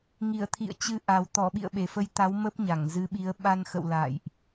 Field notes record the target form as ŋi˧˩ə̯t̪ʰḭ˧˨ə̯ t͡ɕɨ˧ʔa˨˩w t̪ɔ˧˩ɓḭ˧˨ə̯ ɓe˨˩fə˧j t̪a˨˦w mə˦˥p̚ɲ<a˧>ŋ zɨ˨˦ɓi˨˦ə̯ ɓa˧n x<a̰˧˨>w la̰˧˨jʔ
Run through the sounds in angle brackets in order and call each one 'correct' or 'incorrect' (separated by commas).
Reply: incorrect, incorrect